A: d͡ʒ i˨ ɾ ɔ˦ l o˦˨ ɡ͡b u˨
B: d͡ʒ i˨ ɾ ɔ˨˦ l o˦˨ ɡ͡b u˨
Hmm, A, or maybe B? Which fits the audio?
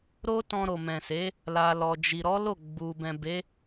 B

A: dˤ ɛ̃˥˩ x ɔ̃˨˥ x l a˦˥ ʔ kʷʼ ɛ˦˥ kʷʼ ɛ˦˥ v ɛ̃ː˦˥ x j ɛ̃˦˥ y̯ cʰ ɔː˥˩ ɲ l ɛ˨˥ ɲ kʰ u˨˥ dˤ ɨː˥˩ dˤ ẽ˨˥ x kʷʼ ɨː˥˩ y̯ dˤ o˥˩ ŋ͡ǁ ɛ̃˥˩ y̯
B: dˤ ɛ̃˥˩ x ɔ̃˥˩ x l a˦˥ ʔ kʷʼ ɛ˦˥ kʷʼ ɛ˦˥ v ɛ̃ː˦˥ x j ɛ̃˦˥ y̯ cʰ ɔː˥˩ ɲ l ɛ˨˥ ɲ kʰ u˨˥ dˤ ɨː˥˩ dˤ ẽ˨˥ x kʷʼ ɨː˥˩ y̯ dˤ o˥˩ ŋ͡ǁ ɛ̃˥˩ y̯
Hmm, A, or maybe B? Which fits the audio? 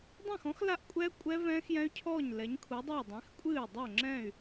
A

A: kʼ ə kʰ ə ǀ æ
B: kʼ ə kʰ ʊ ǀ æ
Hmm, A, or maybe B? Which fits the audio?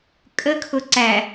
B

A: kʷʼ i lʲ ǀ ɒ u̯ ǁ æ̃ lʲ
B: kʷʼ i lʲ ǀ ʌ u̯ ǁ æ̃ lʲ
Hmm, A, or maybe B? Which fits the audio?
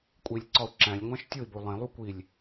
A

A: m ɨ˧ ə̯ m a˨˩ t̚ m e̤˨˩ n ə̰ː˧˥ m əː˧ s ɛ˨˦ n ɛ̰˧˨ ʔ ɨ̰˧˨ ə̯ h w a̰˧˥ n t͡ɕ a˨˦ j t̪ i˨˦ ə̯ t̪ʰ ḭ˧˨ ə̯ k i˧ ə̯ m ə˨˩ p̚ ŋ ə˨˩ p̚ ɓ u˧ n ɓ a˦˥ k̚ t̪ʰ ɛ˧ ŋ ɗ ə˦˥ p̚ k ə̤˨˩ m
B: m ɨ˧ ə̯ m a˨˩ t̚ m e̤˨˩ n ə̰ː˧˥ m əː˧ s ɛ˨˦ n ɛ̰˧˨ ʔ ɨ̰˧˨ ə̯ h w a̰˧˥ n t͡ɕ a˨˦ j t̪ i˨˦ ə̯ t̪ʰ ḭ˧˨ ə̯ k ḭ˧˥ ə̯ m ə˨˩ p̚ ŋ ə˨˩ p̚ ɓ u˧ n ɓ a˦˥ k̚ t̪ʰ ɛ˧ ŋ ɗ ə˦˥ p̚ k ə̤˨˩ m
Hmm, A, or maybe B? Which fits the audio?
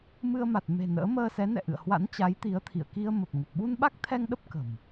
A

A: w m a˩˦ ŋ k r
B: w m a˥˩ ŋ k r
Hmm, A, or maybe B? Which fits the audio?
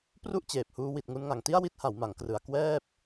A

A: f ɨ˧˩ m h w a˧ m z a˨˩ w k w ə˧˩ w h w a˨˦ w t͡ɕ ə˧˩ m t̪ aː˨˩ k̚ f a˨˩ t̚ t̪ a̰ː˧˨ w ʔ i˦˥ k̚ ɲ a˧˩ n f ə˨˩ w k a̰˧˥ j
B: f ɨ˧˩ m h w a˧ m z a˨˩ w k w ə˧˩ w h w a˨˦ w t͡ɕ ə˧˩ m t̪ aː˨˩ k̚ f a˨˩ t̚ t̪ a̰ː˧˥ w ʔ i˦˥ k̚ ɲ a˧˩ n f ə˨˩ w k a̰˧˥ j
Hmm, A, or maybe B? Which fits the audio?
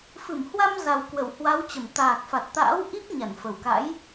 B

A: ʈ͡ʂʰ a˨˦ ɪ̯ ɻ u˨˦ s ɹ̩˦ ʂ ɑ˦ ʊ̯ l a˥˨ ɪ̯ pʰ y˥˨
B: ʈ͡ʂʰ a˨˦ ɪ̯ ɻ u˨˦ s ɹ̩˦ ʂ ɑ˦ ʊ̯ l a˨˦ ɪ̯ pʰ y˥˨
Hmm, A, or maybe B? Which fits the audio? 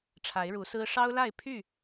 A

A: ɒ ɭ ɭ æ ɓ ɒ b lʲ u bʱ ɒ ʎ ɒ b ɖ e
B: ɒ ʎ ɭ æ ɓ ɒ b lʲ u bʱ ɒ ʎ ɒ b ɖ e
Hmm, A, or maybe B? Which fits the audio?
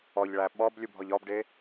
B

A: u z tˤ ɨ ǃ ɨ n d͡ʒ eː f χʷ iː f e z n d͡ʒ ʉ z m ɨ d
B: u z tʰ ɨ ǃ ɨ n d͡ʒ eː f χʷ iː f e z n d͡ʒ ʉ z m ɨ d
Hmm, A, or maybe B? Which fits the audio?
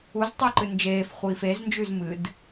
A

